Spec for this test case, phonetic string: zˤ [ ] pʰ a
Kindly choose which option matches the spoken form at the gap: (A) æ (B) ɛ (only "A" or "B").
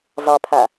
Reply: B